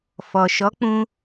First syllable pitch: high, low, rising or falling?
low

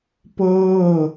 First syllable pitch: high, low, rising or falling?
falling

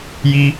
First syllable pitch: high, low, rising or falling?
high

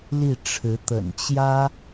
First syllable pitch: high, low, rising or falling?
falling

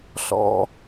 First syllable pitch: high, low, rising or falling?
low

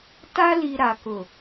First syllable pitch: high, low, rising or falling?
high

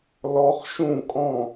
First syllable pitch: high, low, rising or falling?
rising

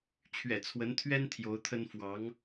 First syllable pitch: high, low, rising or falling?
low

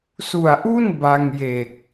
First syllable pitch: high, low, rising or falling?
low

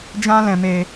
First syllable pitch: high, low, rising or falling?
high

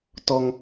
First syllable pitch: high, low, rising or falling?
high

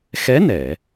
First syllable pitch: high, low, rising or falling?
rising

